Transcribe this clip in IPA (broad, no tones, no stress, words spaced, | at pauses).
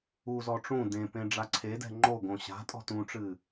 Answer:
uzɔ ʈ͡ʂũ dẽpẽ ɖ͡ʐaǀʰedɛ̤ ŋ͡ǃoɡõ ɕa̤tʼɔ̤ tũʈ͡ʂɨ